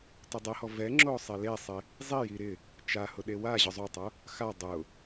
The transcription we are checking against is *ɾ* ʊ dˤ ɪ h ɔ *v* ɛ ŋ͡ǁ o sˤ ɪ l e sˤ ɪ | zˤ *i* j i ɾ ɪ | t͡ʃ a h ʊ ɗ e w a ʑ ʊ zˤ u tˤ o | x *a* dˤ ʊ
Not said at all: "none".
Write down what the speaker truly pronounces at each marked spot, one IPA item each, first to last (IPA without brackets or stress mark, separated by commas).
t, v, i, a